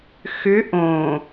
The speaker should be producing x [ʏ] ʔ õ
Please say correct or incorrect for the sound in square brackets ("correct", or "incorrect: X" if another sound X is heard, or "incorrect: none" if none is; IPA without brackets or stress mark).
correct